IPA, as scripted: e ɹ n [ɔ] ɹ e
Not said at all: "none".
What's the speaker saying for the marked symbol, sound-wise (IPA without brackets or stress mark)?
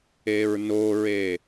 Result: o